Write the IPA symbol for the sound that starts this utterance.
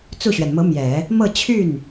t͡s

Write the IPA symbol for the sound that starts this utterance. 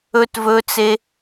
ɵ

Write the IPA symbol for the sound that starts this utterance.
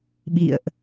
ɓ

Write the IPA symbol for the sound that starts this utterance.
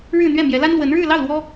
ɻ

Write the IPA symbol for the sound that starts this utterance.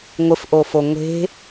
ŋʷ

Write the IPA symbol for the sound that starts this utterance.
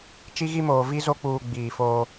t͡ʃ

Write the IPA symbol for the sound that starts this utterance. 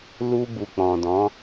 l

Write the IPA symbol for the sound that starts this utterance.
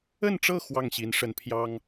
ə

